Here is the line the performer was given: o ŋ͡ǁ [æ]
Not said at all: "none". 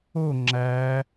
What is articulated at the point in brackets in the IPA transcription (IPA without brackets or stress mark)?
æ